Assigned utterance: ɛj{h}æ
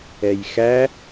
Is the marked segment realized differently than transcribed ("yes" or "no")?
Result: yes